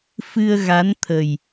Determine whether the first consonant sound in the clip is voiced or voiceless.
voiceless